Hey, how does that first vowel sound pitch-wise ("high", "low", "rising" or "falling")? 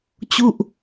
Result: falling